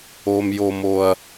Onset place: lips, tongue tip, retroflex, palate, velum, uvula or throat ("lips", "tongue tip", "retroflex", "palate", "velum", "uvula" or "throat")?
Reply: lips